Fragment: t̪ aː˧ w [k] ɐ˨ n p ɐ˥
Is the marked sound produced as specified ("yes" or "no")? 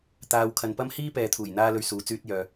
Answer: no